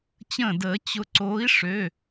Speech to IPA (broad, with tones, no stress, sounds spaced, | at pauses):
t͡ɕ ə̃ː˧˩ d əː˨˩˦ t͡ɕ ʊ˨˦ ǀ oː˨˦ i̯ ʂ ø˩˧˩